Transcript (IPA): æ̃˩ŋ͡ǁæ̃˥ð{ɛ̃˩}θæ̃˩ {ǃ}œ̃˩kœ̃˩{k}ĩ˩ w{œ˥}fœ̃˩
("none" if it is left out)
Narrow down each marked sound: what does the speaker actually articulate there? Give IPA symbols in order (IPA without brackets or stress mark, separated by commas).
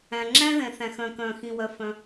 ɛ̃˩, x, x, œ˩